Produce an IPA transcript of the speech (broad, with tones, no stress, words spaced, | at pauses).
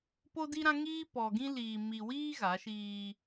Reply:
po˦di˦ɾã˦ ŋiː˦pɔ˨ɡĩ˦ liː˨ mi˨wiː˦ ɣa˨˦ʃiː˦